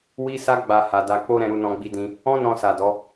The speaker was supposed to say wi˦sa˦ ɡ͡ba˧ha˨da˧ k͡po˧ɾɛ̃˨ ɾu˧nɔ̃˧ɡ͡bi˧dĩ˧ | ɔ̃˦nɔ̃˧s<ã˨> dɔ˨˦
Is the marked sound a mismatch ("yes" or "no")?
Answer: yes